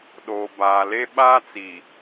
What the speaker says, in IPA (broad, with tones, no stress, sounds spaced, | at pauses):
ɗ oː˨ b aː˨ l e˦ ɓ aː˦ t͡s i˨